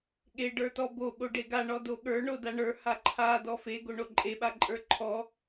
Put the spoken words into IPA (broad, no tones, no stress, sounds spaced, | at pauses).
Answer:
ɠ e ɖ ə˞ t ɔ b o ɠ o ɖ e ɡ a ɳ ɔ d o ɠ ə˞ ɳ o d a ɳ ə˞ h a ǃʰ a d ɔ f e ɡ o ɳ o ǃʼ e ɓ a ǃʼ ə˞ ǃʰ ɔ